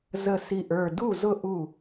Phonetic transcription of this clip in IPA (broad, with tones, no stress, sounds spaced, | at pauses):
z ə˧˩ s i˧˩ ʔ ə˞˧˩ d u˥˩ z ʊ˥˩ ʔ u˥˩